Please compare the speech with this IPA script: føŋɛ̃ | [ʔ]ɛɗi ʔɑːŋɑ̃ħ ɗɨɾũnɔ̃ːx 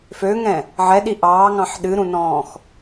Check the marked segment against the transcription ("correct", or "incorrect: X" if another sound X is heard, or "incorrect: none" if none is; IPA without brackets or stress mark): incorrect: ʕ